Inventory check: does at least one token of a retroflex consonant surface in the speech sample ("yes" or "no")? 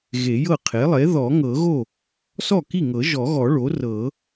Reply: yes